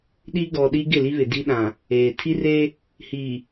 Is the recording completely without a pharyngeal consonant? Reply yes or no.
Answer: yes